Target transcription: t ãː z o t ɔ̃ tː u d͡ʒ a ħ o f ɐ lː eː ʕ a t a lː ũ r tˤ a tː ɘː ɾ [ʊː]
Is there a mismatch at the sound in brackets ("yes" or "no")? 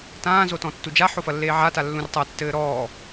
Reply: yes